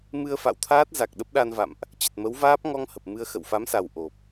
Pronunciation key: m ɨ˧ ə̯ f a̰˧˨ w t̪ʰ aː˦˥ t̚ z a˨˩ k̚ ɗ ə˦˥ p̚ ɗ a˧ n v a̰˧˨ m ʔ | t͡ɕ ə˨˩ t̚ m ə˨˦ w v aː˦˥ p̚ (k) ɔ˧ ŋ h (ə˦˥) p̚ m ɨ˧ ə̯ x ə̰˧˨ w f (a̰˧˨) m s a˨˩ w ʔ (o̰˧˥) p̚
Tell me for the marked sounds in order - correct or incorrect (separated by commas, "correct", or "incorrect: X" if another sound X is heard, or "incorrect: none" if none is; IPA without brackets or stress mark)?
incorrect: ŋ, incorrect: ə˨˩, incorrect: a˨˦, incorrect: o˨˩